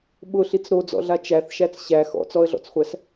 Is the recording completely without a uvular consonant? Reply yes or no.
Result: no